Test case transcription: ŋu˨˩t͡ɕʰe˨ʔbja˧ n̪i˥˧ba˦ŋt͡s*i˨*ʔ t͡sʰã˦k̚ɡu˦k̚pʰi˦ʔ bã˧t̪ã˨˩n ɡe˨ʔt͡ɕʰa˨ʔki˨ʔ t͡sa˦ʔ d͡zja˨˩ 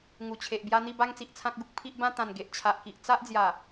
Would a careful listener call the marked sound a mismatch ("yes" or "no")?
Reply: no